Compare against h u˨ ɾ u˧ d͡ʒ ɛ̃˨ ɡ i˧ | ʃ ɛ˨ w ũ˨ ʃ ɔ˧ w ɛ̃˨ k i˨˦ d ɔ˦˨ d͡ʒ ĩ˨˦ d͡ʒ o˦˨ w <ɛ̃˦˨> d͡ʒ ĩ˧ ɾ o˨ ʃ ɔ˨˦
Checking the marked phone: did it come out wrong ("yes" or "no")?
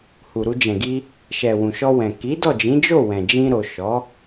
yes